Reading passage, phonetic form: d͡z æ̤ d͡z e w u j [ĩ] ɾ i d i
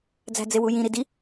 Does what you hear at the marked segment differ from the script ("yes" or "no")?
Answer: no